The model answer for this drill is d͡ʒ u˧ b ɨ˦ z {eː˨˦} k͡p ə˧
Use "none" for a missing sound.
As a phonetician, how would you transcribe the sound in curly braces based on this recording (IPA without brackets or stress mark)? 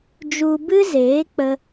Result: eː˨˦